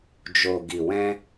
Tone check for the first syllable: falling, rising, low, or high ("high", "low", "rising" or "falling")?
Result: low